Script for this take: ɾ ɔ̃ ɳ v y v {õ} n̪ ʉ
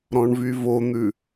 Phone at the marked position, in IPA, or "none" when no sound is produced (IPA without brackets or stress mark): o